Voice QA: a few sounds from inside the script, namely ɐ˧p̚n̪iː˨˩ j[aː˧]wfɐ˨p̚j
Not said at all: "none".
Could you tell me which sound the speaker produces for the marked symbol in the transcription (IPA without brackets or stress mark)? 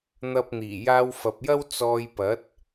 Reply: aː˧